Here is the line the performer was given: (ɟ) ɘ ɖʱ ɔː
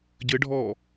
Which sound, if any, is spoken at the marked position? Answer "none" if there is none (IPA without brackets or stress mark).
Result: ɟ